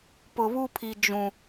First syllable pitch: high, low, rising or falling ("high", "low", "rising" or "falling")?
low